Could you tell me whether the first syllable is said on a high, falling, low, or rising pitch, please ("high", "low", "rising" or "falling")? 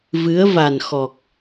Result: rising